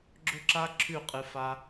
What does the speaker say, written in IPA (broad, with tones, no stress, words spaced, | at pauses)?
ɡ͡ǁɵ˦ǁa˦ ǁʰʉ˦˨qʼɨ˧ fa˧